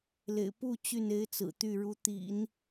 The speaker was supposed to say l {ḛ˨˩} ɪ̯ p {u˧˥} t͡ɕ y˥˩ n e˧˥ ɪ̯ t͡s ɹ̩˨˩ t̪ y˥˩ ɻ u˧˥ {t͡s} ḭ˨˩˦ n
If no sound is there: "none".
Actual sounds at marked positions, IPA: ḛ˨˩, u˥˧, t̪

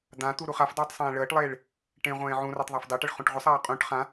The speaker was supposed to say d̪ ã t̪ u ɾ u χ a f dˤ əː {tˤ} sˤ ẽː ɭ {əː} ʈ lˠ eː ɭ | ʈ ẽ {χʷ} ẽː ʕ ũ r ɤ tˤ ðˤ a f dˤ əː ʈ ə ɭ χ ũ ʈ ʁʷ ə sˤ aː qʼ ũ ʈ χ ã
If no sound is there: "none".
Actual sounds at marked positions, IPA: tˤ, əː, ʁʷ

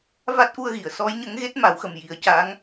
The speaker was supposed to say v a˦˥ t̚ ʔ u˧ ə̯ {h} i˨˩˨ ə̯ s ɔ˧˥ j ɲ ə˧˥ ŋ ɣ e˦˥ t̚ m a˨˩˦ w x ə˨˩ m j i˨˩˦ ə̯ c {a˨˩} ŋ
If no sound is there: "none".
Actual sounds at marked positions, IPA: ɣ, a˧˥

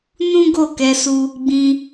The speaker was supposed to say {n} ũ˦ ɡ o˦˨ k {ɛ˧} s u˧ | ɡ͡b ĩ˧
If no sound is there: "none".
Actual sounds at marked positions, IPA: n, ɛ˧

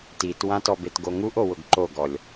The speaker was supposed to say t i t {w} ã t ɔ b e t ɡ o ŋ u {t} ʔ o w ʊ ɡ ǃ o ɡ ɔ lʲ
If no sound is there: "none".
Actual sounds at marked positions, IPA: w, none

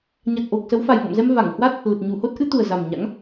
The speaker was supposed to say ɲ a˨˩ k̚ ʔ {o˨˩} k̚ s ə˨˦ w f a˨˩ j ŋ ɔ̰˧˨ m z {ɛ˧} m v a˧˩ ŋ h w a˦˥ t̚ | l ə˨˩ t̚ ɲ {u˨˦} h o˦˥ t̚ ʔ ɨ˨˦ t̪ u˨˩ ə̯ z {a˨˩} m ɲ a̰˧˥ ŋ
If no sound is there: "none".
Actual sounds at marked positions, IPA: o˨˩, ɛ˧, u˧˩, a˨˩

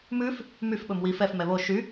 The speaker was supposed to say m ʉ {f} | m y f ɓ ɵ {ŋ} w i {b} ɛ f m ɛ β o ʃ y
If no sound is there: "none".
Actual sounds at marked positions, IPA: f, m, f

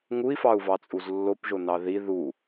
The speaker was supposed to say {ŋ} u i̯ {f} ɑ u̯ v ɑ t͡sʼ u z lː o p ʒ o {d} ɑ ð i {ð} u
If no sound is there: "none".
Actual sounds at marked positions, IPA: ŋ, f, n, ð

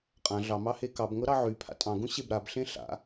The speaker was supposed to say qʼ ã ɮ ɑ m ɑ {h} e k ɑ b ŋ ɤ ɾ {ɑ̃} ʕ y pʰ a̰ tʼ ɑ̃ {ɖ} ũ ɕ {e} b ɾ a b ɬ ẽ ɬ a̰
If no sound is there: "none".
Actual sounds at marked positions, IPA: h, ɑ, ɡ, e

